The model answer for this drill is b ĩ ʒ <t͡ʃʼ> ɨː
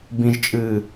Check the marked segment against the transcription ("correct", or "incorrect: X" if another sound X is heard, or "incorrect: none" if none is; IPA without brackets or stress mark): correct